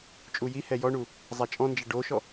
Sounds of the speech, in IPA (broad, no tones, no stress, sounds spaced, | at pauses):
t͡ʃʼ u j i h ɛ j ɔ ɳ u | zˤ a t͡ʃʼ ɔ̃ n d͡ʒ ɐ ɖ o ʃ ɔ